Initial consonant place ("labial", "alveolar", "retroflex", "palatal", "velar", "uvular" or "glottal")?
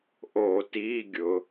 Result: glottal